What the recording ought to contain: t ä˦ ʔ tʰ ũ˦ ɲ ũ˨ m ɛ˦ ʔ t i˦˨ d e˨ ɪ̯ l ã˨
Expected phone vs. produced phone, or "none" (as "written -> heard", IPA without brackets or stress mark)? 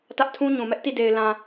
none